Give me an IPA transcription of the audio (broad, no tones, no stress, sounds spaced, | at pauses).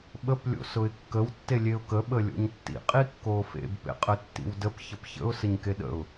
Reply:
ɓ ə p lʲ o̰ s ʊ ɪ̯ kː ə w tː e lʲ e ʊ̯ k ə ɓ ə lʲ o̰ ɲ tː ḭ qʼ i kː oː f ḛ b p ḛ qʼ ə tː ḭ w d ə p ç ə p ç ə̰ ʊ̯ s ə ɲ k e ɗ ə̰ ʊ̯